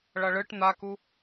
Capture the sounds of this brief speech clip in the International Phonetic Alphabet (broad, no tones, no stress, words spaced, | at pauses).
ɭʌɭɯʈ n̪aku